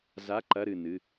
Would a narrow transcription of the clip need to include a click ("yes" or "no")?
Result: yes